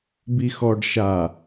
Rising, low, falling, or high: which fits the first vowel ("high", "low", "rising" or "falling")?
low